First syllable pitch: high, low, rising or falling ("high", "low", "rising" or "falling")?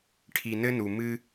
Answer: low